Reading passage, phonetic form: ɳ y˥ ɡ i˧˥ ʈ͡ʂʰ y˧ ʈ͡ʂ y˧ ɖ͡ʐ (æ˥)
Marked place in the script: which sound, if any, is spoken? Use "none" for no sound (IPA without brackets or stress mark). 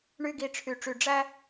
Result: æ˥